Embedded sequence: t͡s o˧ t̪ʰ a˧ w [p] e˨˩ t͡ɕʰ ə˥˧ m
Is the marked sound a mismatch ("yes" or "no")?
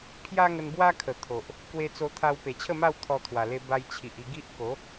no